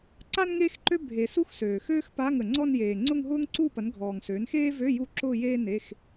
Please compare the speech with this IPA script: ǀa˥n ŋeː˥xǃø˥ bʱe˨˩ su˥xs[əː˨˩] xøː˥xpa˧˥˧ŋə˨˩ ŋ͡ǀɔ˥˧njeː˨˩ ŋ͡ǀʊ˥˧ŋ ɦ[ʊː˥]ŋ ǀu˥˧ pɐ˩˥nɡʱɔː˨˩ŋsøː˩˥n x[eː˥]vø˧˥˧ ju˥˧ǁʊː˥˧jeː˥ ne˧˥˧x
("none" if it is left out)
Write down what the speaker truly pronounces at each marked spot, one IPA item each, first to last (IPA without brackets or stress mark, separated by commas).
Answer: øː˨˩, ʊː˥, eː˥